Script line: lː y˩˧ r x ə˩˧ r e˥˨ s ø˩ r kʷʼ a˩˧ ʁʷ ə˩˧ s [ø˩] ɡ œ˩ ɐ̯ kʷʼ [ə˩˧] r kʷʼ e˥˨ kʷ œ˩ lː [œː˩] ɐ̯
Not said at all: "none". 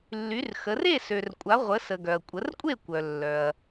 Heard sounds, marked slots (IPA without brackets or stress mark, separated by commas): ə˩, ə˩˧, œ˩